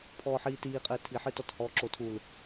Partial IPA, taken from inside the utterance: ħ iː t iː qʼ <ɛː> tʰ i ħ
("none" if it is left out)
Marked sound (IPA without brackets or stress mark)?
ɘː